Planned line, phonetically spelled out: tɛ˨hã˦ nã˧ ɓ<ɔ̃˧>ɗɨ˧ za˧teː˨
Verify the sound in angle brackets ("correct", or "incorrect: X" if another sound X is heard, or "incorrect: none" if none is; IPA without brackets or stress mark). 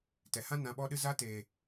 incorrect: ɔ˧